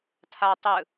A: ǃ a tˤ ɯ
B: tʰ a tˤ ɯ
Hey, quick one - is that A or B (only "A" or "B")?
B